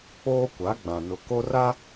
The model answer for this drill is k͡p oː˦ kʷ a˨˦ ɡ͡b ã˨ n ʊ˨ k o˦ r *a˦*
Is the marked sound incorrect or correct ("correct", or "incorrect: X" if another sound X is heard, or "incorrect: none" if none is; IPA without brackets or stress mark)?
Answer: correct